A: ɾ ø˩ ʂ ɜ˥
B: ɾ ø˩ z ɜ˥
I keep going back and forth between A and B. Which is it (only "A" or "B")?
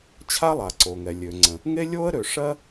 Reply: A